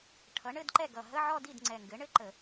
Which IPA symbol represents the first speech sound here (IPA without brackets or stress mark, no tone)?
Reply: ʈʰ